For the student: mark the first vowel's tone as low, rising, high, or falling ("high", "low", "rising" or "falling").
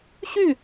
falling